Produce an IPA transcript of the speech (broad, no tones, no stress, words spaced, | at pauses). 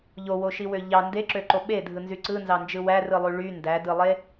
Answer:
ʎowoʃiwø ʎɑ ndeǁøǃo ɓedʱɯnzy ǀɯnzɑnd͡ʒɯ wærɯlˠy ɭy ndædɯlˠe